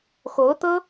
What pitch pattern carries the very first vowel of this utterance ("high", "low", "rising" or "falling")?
rising